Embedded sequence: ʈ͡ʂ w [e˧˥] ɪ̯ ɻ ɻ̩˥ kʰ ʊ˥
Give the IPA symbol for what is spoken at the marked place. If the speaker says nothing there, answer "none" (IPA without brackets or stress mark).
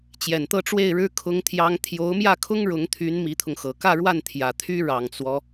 e˥˩